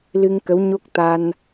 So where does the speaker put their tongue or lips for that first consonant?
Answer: tongue tip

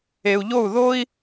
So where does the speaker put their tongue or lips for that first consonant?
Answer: palate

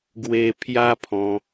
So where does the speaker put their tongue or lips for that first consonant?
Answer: velum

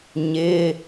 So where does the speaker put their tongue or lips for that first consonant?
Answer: palate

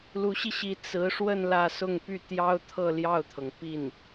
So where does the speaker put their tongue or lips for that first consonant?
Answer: tongue tip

